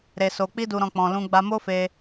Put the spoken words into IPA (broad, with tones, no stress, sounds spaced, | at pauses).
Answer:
ɾ e˧ s o˧ k͡p i˦ d u˧ ɾ ɔ̃˧ k͡p ɔ̃˧ l ũ˦ ɡ͡b a˧ m o˦ f e˧